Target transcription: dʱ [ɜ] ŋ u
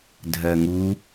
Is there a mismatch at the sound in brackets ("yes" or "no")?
no